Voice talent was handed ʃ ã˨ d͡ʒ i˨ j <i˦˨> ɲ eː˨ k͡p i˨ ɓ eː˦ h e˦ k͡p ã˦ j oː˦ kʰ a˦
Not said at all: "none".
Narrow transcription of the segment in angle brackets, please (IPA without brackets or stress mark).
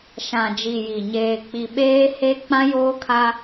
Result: i˨